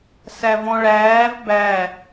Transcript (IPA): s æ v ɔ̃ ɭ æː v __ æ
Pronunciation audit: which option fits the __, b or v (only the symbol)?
b